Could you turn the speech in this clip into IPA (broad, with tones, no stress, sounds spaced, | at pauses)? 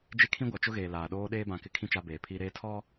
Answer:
d͡ʒ e˦ kʰ ĩ˦ ɡʷ a˨ t͡ʃ ʊ˦ ɣ eː˨ l aː˨ ɗ oː˦ ɗ eː˦ b ã˨ k ɪ˦˨ kʰ ĩ˦ t͡ʃ a˦ b eː˨ pʰ iː˦ ɾ eː˦ tʰ ɔ˦